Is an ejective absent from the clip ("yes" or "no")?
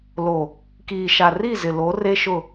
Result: yes